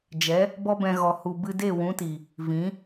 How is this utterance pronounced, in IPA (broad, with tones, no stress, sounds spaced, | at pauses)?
d͡ʒ ɛ˨˦ | b ɔ˦ b ɛ̃˧ ɣ ɔ˨ h u˨ b ɨ˧ d e˦˨ w ũ˨˦ t i˨ | v ĩ˨˦